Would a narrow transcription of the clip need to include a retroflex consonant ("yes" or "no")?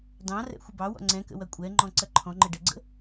yes